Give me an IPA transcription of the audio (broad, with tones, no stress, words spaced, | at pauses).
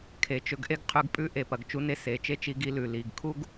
kʰe˨ t͡ʃɵ˧ɡʔe˦ɡ qʰʉ˧ɡpʼʉ˦ʔe˨ pɐ˨ɡt͡ʃu˨˦ne˧ se˨t͡ʃe˦t͡ʃi˧ɡi˧ lʉ˨ li˨ɡkʰu˦ɡ